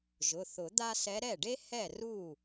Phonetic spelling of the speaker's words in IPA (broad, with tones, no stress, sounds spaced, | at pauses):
ʒ ʊ˩˧˩ θ ʊ˨˩˦ d̪ a˥ s ɛ˧˥ ɾ ɛ˥˩ ɖ e˥ h ɛ˥˩ r u˥˩